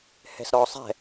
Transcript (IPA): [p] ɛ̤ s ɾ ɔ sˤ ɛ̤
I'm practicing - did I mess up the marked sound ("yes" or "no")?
yes